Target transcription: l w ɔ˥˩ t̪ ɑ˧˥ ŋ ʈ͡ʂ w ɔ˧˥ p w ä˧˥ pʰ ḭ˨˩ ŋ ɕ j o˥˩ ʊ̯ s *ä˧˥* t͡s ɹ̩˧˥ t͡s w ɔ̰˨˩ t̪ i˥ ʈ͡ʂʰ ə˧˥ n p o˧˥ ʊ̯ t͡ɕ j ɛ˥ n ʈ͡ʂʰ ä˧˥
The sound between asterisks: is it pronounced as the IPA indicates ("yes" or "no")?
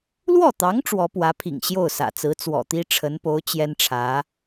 no